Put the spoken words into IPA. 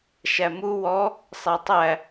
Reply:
ʃ æ m u w ɔ | sˤ ɛ tˤ æ

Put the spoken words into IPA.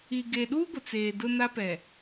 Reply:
i˨ ɡ e˨ ɗ u˦ ɡʷ ɪ˨ t͡s eː˨ d ʊ˦ n a˦ p ɛ˨

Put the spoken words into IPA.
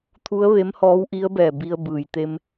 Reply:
t̪ʰ u˧˥ ə̯ ʋ e˧˥ m h ɔː˧˥ w ʔ i˧˥ ə̯ b ɛː˧˩ b i˧ ə̯ b ɯː˩ j t̪ e˧ m

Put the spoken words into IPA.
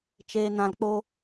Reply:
t͡ʃ eː˨ n ã˨ l k͡p o˧

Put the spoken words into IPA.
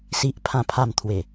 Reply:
s i˨ ʔ pʰ ã˨˩ pʰ a˨˩ m t̪ʰ w e˨˩

